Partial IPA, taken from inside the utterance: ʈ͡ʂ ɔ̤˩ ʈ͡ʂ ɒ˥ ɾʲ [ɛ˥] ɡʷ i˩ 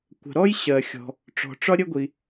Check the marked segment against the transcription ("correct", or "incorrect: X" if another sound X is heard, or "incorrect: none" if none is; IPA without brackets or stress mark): incorrect: ə˥